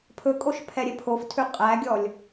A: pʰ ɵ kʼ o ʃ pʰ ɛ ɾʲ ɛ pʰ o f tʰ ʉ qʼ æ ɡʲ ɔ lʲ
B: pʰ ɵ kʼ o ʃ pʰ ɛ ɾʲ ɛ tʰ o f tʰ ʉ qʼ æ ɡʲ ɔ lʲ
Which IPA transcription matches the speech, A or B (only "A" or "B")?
A